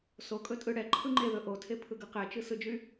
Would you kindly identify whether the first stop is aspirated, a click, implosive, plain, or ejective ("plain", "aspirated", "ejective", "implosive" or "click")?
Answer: ejective